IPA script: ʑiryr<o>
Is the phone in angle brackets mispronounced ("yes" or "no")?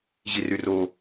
no